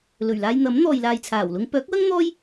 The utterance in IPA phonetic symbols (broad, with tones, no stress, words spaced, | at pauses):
lɵ˨˩ɥlaː˧jn̪ɐ˨˥m n̪ɔː˨jlaː˨jt͡sʰaː˨˩wlʊ˧ŋ pœː˨˥k̚wɐ˥ŋ n̪ɔː˥j